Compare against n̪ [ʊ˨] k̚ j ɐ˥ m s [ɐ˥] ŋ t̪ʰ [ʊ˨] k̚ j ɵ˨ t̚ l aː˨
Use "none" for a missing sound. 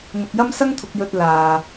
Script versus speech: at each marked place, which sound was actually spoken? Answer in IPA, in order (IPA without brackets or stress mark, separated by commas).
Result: ʊ˨, ɐ˥, ʊ˨